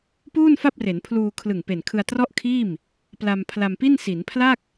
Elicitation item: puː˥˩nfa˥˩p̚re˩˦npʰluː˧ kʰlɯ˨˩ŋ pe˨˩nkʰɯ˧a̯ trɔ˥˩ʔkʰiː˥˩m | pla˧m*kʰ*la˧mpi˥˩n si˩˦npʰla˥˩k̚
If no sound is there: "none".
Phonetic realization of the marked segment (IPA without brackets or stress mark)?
pʰ